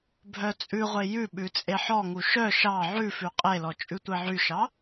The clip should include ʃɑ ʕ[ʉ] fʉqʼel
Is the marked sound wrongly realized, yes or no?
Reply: no